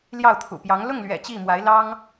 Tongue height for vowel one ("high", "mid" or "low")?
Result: low